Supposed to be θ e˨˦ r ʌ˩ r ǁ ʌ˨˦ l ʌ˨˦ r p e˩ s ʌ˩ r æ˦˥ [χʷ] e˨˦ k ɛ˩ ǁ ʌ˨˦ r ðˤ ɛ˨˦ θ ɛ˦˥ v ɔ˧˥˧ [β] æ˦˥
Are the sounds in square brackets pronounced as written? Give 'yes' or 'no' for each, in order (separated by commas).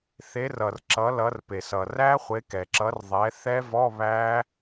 yes, yes